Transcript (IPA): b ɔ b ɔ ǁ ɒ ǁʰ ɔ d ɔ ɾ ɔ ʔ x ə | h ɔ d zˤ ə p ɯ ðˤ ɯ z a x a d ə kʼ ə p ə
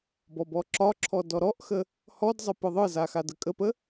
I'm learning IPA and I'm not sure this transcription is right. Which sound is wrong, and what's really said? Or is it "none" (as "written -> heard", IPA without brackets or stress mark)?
none